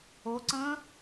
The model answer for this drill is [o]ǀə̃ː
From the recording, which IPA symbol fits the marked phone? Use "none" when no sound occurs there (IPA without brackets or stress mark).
o